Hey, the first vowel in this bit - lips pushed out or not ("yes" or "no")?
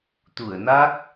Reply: yes